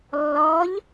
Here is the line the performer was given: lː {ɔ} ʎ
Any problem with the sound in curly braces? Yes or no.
no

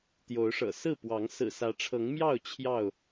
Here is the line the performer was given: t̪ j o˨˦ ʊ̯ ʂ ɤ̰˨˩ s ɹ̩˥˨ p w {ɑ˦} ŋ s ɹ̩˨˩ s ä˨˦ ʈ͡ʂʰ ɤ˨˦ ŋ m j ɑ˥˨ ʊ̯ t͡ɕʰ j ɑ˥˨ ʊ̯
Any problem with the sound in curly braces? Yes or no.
yes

